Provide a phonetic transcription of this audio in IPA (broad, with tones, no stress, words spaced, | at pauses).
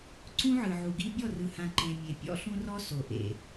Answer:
ǀũ˦ʕɯ˨ʕu˨ɡi˦ bʲɔ˦˨rɯ˨hã˨ ǃẽ˨ mʲe˨ pʲɔ̰˦ɬũ˦ rɔ˦ so˨ ʔḛ˨